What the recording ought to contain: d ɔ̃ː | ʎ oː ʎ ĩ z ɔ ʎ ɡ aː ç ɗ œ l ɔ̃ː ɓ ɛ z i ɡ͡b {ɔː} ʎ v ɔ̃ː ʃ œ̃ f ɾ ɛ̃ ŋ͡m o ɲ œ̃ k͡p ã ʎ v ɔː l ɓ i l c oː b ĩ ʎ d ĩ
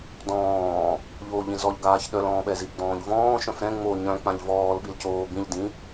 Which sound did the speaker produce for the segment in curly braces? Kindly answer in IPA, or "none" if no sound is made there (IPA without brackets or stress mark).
ɔ̃ː